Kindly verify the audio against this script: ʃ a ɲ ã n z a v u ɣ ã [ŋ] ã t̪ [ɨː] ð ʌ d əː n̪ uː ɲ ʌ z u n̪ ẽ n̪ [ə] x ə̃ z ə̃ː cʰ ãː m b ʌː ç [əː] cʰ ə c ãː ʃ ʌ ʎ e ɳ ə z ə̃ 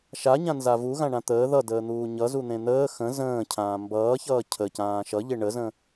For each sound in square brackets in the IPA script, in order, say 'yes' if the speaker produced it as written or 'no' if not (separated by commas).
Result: no, no, no, no